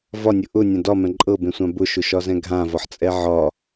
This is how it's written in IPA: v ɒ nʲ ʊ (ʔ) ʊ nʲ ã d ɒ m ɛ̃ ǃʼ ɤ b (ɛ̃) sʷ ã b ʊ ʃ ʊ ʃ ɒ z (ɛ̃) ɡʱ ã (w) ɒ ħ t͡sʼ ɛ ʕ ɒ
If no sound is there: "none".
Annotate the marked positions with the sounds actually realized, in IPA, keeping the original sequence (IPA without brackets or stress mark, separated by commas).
ʔ, ẽ, ɛ̃, v